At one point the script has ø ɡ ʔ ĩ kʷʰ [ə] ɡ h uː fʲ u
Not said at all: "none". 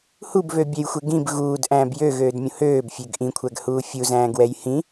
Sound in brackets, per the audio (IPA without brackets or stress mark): æ